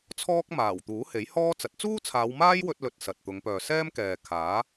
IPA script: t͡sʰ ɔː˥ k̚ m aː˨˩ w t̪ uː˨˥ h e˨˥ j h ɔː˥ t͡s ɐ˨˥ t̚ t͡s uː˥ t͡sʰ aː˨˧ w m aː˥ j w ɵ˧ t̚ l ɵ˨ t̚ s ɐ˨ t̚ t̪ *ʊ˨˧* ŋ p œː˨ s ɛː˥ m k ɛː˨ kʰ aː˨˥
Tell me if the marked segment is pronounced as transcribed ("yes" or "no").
yes